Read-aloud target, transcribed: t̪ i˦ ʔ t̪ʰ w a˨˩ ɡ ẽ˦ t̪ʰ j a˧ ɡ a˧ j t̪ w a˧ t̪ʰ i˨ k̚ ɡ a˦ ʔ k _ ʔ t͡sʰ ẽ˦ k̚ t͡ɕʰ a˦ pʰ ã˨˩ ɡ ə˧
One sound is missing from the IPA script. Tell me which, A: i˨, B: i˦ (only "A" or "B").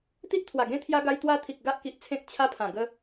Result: A